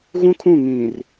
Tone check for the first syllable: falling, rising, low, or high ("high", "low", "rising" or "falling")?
high